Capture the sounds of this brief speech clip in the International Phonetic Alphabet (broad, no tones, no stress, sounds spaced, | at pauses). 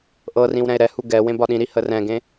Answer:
ʔ ɤ r ĩ w ɾ ɛ̃ e̯ ɾ ɛ h u ɡ ɛ w ẽ b ɒ ɗ ĩ ɾ i h ə r ɛ̃ ɡ ẽ